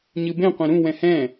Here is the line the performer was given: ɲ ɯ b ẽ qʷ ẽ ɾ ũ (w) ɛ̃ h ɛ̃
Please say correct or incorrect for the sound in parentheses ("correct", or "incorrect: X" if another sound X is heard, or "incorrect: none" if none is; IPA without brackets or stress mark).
correct